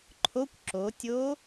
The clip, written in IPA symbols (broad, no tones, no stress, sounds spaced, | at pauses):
ǃʰ o kʷ ǁ o tʲ o